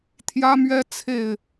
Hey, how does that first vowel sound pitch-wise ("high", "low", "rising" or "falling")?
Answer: high